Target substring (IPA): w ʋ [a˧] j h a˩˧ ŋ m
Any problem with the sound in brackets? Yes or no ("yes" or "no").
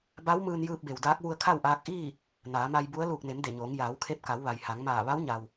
yes